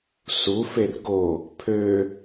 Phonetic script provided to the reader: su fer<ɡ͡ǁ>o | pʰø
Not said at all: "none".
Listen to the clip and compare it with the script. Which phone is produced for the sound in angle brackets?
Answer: ɡ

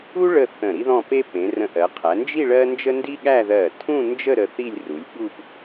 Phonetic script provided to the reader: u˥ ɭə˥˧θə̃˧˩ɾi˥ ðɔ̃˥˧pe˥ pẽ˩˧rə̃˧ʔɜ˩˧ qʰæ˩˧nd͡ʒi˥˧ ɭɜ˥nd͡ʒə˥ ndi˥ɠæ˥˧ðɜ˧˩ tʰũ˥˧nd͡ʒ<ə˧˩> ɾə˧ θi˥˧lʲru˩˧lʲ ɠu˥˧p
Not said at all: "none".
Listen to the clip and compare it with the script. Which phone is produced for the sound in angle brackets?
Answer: ə˥˧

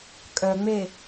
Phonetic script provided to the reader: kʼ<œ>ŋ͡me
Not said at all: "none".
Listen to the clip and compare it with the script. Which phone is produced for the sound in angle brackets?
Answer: œ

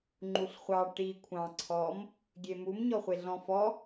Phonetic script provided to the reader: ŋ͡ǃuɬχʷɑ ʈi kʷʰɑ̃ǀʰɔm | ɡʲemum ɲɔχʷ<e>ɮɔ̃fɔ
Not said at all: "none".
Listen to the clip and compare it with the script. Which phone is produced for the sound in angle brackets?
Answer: e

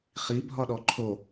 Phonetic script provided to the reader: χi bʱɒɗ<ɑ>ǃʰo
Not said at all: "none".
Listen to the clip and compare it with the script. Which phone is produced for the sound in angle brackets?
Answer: ɔ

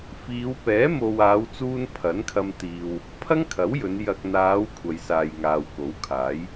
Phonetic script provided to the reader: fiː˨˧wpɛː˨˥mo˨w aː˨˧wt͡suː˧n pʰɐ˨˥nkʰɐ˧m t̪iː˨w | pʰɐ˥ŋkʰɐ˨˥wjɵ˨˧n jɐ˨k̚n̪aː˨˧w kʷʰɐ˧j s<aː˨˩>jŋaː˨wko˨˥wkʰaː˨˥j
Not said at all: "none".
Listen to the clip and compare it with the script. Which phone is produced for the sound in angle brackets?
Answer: aː˨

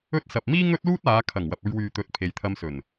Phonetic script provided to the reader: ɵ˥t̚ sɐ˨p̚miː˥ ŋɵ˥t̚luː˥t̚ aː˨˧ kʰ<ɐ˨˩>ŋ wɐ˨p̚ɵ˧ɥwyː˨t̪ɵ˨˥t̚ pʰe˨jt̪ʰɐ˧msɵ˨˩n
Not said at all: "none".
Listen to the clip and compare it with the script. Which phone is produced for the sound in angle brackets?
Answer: ɐ˨˩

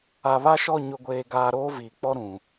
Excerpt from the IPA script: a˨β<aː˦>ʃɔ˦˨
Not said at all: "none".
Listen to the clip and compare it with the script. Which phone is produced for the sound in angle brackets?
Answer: a˦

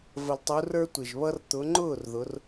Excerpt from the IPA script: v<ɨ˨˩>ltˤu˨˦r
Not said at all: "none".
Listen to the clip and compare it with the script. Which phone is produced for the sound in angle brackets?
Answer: ə˨˩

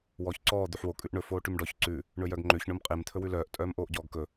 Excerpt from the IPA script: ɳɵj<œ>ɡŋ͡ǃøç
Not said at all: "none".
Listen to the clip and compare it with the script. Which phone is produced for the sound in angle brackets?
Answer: œ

